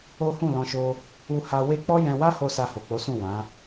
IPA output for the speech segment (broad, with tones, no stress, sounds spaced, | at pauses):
o˦ h ũ˦˨ l ɔ̃˧ ʃ o˧ | u˧ h a˧ w e˦ k͡p ɔ˦ j ɛ̃˧ w a˦ h o˧ s a˧ h o˨ k͡p o˨˦ s ũ˦˨ w ã˨˦